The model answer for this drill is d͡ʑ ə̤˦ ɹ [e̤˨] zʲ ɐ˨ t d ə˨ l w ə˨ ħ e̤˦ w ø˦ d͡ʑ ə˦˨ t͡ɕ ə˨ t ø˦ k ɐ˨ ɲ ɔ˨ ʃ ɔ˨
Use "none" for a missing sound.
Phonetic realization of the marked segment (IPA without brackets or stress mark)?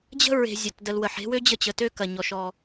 e̤˨